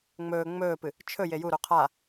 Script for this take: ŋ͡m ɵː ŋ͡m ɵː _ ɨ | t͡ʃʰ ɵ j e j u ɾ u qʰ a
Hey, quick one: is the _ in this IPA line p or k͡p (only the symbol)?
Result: p